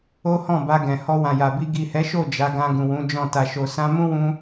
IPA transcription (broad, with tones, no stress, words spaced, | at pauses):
o˦hɔ̃˦˨ba˧ ɡɛ̃˨ hɔ˧wã˨ja˨bi˧ ɡi˨hɛ˨˦ʃo˦˨ d͡ʒa˨˦ɡã˧ ɡũ˨wũ˨˦ d͡ʒɔ̃˦˨ ta˨ʃo˨ sã˧mũ˦wũ˧